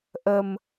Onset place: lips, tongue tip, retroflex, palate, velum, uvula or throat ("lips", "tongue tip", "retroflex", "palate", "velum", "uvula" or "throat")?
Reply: throat